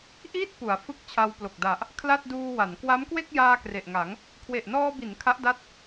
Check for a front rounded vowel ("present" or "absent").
absent